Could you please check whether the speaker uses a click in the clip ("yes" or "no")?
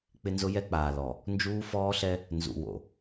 no